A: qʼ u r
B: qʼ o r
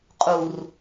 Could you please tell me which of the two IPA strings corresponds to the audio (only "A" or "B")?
A